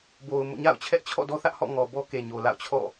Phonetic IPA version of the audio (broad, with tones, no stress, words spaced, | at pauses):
bo˨ʊ̯ mo̰˦˨ɲa̰˦˨ʊ̯ t͡ɕʰɛ˦ʔt͡ɕʰɔ̰˦˨dɔ˦θä˦ʔ hɔ̰˦˨ŋɔ˨ bɔ˦ke˨ɲo˨ la̰˦˨ʊ̯t͡ɕʰɔ̰˦˨